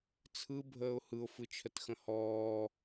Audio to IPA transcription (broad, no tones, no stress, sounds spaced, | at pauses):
t͡sʰ ɯ bʱ əː ʊ̯ h ɯ ʊ̯ f ɯ t͡ʃʰ ə t x ə̃ h ɔː